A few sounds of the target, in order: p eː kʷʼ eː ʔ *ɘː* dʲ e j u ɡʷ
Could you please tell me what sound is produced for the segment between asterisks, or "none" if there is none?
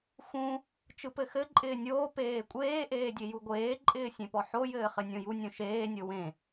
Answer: eː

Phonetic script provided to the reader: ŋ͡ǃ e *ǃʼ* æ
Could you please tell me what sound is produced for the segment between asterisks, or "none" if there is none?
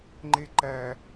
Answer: ǃ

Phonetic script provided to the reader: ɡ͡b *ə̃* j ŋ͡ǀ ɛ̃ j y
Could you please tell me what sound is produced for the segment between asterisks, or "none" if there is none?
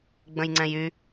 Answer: ə̃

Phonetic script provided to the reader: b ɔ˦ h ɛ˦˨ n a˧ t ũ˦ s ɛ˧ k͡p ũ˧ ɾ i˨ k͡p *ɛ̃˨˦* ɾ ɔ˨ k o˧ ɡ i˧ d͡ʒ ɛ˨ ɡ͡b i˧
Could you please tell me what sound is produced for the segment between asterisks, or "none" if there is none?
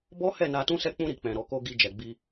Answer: ɛ̃˨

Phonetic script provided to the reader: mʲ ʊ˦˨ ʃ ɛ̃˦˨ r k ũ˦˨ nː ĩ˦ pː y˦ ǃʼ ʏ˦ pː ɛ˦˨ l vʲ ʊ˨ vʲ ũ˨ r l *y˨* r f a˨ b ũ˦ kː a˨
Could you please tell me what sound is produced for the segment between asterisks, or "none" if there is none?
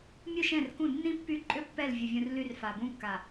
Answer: y˦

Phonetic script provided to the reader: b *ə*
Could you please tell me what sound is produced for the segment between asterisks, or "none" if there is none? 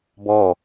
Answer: ɔ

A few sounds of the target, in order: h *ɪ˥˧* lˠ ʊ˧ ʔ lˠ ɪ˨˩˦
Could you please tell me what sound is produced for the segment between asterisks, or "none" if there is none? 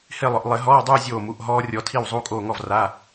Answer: ɪ˥˧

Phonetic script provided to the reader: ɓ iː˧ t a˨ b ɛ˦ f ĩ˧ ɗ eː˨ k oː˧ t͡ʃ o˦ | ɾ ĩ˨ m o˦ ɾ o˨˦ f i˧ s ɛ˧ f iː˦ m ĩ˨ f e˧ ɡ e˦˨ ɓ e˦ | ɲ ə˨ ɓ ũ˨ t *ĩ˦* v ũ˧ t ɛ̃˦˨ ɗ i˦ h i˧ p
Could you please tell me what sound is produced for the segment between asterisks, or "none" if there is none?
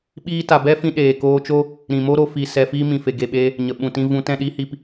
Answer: ĩ˧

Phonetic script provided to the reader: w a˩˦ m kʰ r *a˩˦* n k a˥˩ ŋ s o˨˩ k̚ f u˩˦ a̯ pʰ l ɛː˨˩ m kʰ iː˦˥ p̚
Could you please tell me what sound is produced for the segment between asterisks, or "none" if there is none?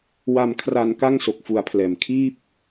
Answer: a˩˦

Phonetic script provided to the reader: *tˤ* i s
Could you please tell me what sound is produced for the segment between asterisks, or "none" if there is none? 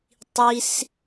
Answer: tˤ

